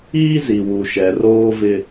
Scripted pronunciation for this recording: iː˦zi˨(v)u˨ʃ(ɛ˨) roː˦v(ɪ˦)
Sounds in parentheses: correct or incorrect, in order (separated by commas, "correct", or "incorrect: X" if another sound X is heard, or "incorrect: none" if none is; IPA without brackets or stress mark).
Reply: incorrect: w, correct, correct